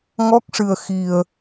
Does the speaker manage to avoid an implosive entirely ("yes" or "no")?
yes